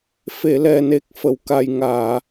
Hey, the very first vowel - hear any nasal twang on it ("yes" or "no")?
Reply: no